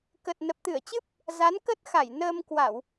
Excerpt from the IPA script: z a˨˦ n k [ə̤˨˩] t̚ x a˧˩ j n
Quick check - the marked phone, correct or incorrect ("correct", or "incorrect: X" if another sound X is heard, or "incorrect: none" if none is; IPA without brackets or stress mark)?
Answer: incorrect: ə˦˥